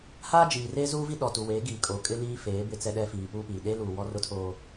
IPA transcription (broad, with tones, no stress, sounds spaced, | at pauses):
h aː˦ d͡ʒ iː˨ r eː˦ z uː˦ v i˦ ɗ ɔ˨ t u˨ w eː˨˦ ɡ iː˨ kʼ oː˨˦ kʼ ɪ˦ l iː˦ f eː˨˦ b ɪ˦ t͡s ɛ˦ ɗ ɛ˦ f iː˨ p uː˦ p iː˨ ɗ eː˦ l uː˨ w ɔ˦ r ʊ˦ tʰ oː˦